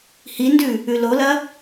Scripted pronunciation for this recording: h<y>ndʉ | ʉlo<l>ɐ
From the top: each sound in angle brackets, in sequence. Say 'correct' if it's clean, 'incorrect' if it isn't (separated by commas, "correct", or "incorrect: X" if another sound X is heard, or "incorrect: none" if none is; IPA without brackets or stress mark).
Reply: incorrect: i, correct